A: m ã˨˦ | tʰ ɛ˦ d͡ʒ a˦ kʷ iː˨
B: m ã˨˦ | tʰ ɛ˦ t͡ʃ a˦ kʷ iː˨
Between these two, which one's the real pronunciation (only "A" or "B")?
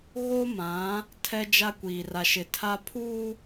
A